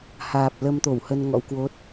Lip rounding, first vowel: unrounded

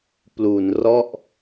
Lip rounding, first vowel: rounded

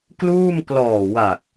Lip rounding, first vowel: rounded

